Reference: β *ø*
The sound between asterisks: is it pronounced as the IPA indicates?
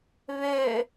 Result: yes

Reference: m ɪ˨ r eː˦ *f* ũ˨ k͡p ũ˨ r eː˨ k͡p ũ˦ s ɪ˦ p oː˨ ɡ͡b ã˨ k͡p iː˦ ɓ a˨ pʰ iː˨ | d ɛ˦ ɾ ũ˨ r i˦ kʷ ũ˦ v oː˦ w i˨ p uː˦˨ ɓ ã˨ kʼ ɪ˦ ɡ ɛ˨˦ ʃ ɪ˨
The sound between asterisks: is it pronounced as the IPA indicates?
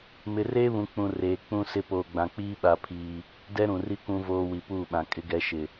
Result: no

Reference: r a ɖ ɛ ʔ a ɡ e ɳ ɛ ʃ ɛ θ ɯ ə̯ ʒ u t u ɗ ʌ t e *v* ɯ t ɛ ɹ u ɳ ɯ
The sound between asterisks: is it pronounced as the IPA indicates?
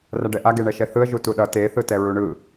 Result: no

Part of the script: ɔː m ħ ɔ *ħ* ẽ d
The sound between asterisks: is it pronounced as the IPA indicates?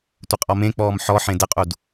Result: yes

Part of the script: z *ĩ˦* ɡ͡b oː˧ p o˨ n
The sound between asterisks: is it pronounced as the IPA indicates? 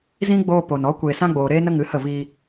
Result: yes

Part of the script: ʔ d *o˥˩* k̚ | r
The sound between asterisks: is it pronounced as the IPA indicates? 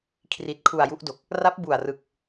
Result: no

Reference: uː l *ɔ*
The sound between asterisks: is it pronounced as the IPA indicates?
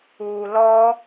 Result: yes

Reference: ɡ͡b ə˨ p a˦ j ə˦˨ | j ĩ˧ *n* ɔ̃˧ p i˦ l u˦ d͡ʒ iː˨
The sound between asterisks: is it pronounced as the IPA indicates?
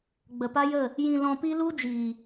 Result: no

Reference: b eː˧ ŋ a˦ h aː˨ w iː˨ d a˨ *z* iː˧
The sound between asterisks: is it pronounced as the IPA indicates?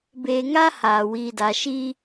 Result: no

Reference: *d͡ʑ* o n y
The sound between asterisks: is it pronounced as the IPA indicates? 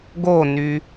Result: no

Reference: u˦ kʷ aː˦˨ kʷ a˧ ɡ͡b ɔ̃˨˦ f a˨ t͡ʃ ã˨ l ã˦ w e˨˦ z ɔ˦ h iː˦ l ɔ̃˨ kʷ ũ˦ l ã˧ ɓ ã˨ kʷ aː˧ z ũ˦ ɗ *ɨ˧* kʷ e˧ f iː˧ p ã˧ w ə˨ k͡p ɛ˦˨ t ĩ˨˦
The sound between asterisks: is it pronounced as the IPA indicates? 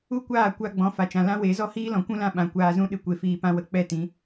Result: yes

